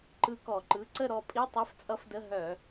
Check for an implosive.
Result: absent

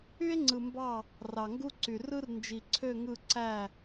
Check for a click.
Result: present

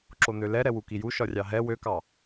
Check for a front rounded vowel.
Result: present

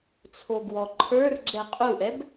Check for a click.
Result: present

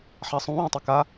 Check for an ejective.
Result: absent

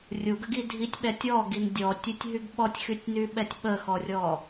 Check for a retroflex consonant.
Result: absent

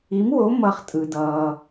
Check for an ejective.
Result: present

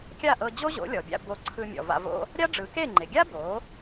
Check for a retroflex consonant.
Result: present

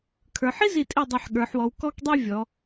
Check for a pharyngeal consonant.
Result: present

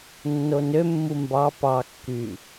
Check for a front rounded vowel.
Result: present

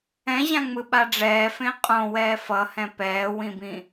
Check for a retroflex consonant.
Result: present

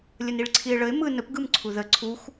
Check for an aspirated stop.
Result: present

